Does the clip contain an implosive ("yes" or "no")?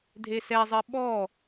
yes